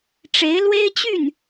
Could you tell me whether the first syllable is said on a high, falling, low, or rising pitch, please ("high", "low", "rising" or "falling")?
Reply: rising